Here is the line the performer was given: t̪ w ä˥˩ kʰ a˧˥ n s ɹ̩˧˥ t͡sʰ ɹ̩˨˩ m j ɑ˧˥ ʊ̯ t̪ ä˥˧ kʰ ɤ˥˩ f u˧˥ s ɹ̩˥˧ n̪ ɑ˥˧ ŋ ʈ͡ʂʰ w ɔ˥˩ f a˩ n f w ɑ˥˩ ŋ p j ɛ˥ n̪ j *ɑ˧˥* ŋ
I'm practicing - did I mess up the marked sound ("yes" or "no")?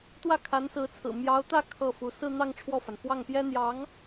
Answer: no